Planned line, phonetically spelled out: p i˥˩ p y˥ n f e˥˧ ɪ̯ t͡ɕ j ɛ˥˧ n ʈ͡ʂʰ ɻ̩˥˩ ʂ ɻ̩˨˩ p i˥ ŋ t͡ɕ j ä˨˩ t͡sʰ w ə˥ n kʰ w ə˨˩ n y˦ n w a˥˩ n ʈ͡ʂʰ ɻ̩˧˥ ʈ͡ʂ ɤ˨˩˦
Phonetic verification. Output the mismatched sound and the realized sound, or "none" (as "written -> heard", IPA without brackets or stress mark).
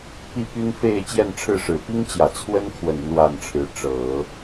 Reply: none